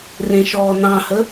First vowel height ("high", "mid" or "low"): mid